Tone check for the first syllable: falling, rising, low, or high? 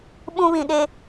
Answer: high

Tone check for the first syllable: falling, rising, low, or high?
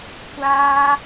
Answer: high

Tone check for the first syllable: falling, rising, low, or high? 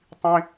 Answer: high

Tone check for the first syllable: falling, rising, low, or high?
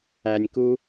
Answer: low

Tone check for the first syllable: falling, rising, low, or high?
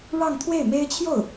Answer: falling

